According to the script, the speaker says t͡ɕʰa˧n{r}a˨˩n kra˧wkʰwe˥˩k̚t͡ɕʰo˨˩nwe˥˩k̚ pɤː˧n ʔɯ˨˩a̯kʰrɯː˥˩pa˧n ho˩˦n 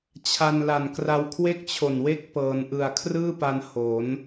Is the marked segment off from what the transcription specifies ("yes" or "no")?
yes